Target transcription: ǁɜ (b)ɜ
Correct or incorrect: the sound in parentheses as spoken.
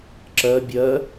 incorrect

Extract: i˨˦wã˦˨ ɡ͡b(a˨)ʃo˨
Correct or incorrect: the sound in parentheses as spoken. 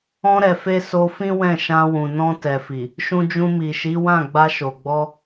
incorrect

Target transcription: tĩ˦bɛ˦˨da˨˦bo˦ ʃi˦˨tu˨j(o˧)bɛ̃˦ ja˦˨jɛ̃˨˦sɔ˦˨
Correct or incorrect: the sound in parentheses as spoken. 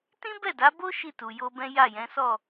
correct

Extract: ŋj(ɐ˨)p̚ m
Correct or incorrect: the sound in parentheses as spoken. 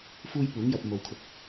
correct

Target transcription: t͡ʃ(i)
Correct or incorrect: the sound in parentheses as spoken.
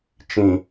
incorrect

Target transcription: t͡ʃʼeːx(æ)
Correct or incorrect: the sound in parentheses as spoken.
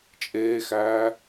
incorrect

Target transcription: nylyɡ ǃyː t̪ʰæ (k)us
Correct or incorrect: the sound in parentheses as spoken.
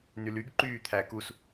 correct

